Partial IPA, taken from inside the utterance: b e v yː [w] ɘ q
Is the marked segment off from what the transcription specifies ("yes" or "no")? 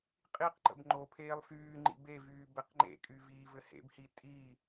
yes